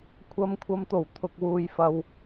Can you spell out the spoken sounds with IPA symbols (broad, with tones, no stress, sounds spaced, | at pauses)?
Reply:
kʷʰ ɐ˨ m kʷʰ ɐ˨ m t̪ o˨˩ w t̪ʰ ʊ˨ k̚ w uː˨ j f ɐ˨ w